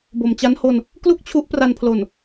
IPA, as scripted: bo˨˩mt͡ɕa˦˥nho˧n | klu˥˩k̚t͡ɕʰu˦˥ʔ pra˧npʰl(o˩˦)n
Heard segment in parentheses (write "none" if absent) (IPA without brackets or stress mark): o˨˩